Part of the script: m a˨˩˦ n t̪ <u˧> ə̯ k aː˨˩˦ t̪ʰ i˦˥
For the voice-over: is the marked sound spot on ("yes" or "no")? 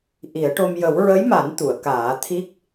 no